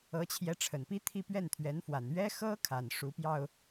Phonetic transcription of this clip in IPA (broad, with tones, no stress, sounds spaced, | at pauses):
ɤ˧˥ t͡ɕʰ j ɛ˧˥ ʈ͡ʂʰ ə˨˩ n p i˥ t̪ʰ i˥˧ p ɥ ɛ˥˩ n t̪ʰ ɥ ɛ˧˥ n f w a˨˩ n ɥ ɛ˥ x ɤ˥ kʰ a˨˩ n ʂ u˧˥ p j ɑ˧ ʊ̯